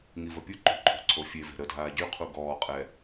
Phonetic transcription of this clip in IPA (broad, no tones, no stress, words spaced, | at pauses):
ŋivəpʲuǃo̤ ǃʰo̤ǀʰofʲeve̤ ɾədʱaː ɟyqʰu ɡɔːqʼɛ